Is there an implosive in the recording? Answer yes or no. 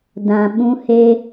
yes